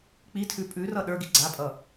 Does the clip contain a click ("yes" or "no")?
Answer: yes